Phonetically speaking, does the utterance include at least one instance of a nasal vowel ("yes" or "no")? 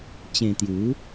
yes